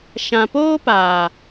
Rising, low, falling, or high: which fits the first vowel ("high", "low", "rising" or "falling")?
low